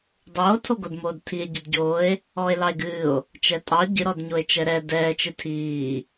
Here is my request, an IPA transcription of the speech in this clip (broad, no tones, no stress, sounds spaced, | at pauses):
dˤ oː tʰ o ɡ o d m oː d tʰ i e̯ ɟ i d ɟ oː e̯ | ɔː e̯ l ɑ e̯ ɡ ɨː o̯ | t͡ʃ ɛ tʼ ɑ ɟ ɨ ɾ ɔ d ɲ o e̯ t͡ʃ ɛ ɾ ɛ d ɛː t͡ʃ ɨ tʰ iː